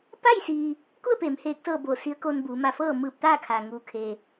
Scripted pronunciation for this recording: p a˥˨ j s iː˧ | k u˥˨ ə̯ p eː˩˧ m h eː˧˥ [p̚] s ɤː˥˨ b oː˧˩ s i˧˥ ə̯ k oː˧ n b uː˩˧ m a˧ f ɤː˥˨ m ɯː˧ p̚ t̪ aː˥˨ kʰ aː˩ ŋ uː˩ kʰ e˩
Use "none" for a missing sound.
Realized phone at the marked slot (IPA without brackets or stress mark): k̚